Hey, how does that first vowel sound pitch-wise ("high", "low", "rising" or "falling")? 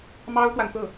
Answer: high